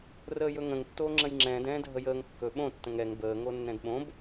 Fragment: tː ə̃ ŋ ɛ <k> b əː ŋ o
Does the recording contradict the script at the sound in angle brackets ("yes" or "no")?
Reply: yes